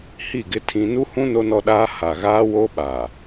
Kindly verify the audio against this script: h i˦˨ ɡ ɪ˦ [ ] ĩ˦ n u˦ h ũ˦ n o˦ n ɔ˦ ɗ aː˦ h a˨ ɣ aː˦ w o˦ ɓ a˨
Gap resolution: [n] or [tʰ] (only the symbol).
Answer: tʰ